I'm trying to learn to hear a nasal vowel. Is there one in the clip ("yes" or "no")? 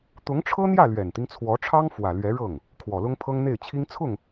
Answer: no